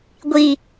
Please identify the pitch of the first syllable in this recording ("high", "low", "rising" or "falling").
high